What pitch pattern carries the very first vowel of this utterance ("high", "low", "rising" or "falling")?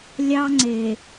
high